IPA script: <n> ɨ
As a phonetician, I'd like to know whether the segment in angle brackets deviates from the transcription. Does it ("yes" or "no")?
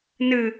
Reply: no